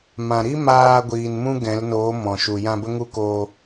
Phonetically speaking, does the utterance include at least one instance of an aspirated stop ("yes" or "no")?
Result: no